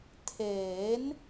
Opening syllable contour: rising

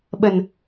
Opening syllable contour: low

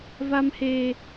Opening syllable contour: high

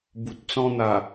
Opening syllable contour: low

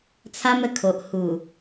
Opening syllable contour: high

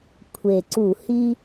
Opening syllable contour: low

